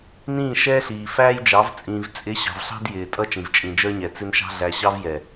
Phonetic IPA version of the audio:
n ĩː˦˨ ʃ ɛː˦ ɬ iː˨ f æː˦ j d͡ʒ ɑ˨˦ v t͡sʼ ĩː˨ v t͡sʼ ɪ˨˦ ɕ ɑ̤˨ v ɬ ɑ̤˦ d j ɪː˨ tʼ ʌ˦ t͡ʃ ĩ˨ v t͡ʃʼ ĩ˨ d͡ʒ ə˞˦ ɲ ɛ˨ t͡s ɪ˦ n ʃ ɑ̤˦ ɮ æ˨ ɕ ɑ˦ v j ɛ˨

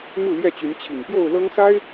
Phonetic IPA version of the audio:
m u˥˨ l j ɛ˥˨ t͡ɕ y˨˦ n t͡ɕʰ i˨˩ ŋ p j o˥˨ ʊ̯ l ɤ˦ ŋ s a˦ ɪ̯

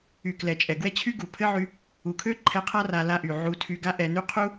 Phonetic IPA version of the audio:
y˨ k l ɛ˨ t͡ʃʼ ɛ˨ ɡ w ɛ˦ t͡ɕʰ y˦ ɡ u˨ pʰ ɘ˦ ʕ y˧ | u˨ kʰ ø˦ ǃʰ ɛ˧ qʰ a˦ r a˧ l a˧ ʔ y˨ ʕ u˧ tʰ y˧ ɡ a˦ ʔ ɛ˧ n y˦ qʰ u˦

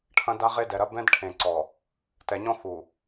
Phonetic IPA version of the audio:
ʈʰ ɐ̃˦ d a˦ ʁ e˦ d ɛ˨ ɾ ɐ˦ b ɛ̃˦ d ʈʰ ẽ˨ ǀ ɔ˨ | t ɛ˨ ɲ ɔ̃˦ x u˨

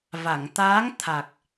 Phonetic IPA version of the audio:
v a˨˩˨ ŋ t̪ aː˧˥ ŋ t̪ʰ a˨˩ k̚

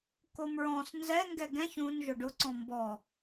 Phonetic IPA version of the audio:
k o m ɹ ɔ̃ s n z ɛ ŋ ɡ ɛ ɡ ɛ̃ ç ũ n ʒ ʊ ɖ ʊ ǀ ɔ̃ m b ɔ

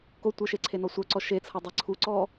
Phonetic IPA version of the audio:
k o tʷ ɤ ʃ e ǀʰ e n ɔ sʷ œ ǀ ɔ ʃ e t͡sʰ ɤ dˤ ɛ ǀʰ u ǀ ɔ

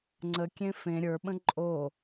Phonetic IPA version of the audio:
ŋ͡ǀ ə kʲ ẽ f ẽ ɾʲ ə˞ ɓ ə̃ ǃʼ o

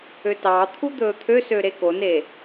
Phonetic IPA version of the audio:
ø t ɑ t̪ʰ u d̪ ɵː t̪ʰ ø s ø ɾ e k o n e

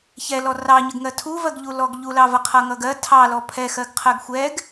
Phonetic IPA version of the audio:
ç ɛ l ɔ r ɑ ɲ ə ɡ ŋ ɜ tʰ u v ɜ ɡ ʎ u l ɔ ɡ ʎ u l ɑ v ʌ qʰ ʌ ŋ ʌ ɡ ɜ tʰ ɑ l ɔ pʰ ɛ x ɜ ɡ qʰ ɜ ɡ xʷ ɛ ɡ

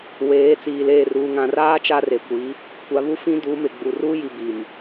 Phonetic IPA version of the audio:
w eː˨˦ t͡s iː˨ l eː˦˨ r uː˨ ŋ ã˨ r aː˦ t͡ʃ a˦ r e˨ kʷ i˨˦ | kʷ a˨ β u˦ f ĩ˦ d uː˨˦ m ɪ˨ ɡ͡b u˨ r uː˦ j i˨ b iː˨ m

